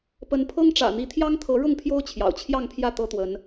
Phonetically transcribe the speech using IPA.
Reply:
pə˨˦npʰɤ˦ŋʈ͡ʂä̰˨˩ n̪i˨˦t̪ʰjɑ˦ŋt̪ʰɤ˨˦ ɻʊ˥˨ŋpʰjo˦ʊ̯ t͡ɕʰjɑ̰˨˩ʊ̯t͡ɕʰjɑ˥˨ŋpʰjä˥˨ t̪ɤ˦t̪wə˨˦n

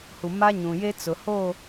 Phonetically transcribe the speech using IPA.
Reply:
hu˨ma˦ɲũ˨je˦ t͡sʊ˨hoː˦˨

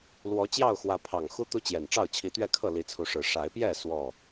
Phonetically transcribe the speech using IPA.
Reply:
lwɔ˨˦ t͡ɕjɑ˥˨ʊ̯xwä˨˦ pʰɑ˨˩ŋxu˦ t̪u˦t͡ɕjɛ˨˩nʈ͡ʂɑ˥˨ʊ̯ t͡ɕʰi˨˦t̪ɥɛ˥˨kʰɤ˥˨ li˨˦t͡sʰu˨˦ʂɻ̩˨˩ ʂa˨˦ɪ̯pjɛ˥˨ swɔ˥˨

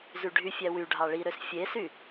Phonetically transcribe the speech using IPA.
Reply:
zyɖʱyfʲæ wy ɖʱɑɭiɾøs fʲesy

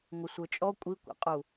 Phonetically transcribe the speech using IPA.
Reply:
ŋʷɪsʷə˞t͡ʃʼɔ kʷʼikʷɛ̰qʼu

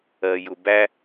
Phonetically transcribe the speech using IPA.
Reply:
ɜjʊbæ

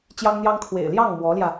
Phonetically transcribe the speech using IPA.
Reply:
t͡ɕjɑ˥ŋn̪jɑ˥ŋ kʰwḛ˨˩ɪ̯ljɑ˥˩ŋ mwɔ˧˥ljä˧

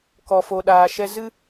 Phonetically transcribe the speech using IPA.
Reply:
kɔ˨fo˨ɗaː˨ʃɛ˧ zɨ˦

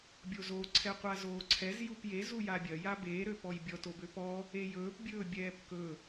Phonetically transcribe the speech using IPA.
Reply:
bʲozo ǀʰɛqʷazoːǀʰɛz jupje zujabʲɐ jabeː ɾøpɔjbʲɔt obøpɔ | ejɵːp bʲɵːbʲɛːpkɵ

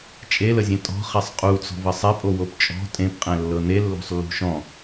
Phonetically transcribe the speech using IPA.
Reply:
t͡ʃʼeləzʲɛ̃ tʼɔ̤χɛsˤ qʼut͡sɔ̤və sˤɛpʼowop t͡ʃʼɔ̤ tʼẽpqʼɛ̃lːɤ nelːo̤sˤlːṳ ʃɔ̃

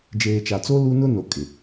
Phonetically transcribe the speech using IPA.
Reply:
d͡ʒeː˨t͡ʃa˨t͡so˦ lu˦ nʊ˦ no˨kʼɪ˨

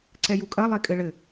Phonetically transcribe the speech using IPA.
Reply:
ǀɛjukʼɐ lˠekʼɘɭɘ

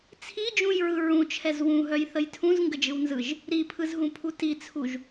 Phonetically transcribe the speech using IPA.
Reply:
t͡sʰid͡ʒũjɹɯ ɹũt͡ʃʰɛz wũɦœjθəj tʰũzŋɡəd͡ʒɯwnzɯʒ | ɾipʰɯzɦũpʰu tit͡sʰuʒ

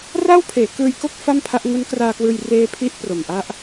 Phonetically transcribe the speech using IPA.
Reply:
ra˥˩wpʰeː˩˦kɯː˧jko˥˩k̚ fa˥˩mpʰa˦˥ʔ ŋu˦˥nkraː˧kwɯː˧j reː˦˥pʰi˦˥ʔ pro˨˩mʔa˦˥ʔ

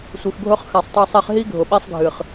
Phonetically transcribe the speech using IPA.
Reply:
sʷɨ˨xɡʱʊ˦χ xa˨sˤtˤa˧sˤe˧χɦi˦ ɡʱʊ˨ɓɛ˦sˤɡʱɨ˨χ

